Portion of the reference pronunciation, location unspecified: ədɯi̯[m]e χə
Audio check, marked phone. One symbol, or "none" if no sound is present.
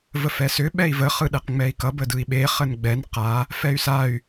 ɓ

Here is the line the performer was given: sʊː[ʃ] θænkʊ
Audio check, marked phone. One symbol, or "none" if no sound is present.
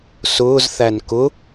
z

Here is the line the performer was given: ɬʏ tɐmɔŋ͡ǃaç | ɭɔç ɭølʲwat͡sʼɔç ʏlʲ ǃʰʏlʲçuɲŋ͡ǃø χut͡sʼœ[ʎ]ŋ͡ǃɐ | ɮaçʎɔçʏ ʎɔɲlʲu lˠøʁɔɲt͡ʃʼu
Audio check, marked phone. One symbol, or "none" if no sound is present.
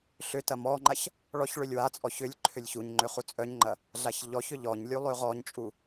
ɲ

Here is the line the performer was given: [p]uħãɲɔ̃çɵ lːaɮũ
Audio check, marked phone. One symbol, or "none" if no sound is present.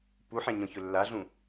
p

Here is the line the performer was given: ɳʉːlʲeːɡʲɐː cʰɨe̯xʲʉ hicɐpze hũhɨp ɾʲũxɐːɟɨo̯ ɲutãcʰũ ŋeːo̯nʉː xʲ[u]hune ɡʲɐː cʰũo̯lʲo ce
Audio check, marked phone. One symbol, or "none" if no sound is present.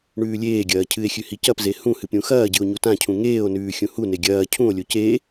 ũ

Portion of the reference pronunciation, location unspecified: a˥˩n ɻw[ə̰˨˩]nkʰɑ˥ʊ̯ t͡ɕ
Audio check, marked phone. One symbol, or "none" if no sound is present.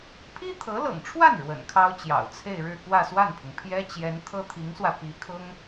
ə̰˨˩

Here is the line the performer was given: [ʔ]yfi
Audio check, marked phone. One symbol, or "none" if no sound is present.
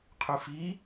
qʰ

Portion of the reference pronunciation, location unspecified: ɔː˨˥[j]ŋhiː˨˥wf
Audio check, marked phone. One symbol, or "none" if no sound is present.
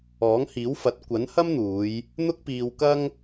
none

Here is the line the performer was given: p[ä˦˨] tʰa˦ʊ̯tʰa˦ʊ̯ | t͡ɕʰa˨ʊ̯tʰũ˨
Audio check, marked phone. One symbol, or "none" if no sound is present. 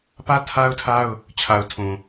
ä˦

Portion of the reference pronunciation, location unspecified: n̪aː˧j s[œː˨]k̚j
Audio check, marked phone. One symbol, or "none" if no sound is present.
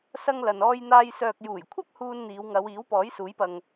œː˨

